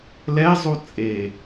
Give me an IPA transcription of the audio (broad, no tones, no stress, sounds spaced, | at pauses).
l ɛ zˤ u t͡sʼ e